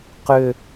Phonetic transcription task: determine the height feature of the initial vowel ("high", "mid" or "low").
high